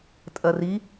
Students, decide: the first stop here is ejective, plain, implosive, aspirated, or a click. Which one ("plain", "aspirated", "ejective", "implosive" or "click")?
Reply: ejective